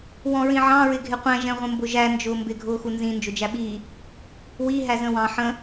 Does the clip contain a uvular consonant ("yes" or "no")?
yes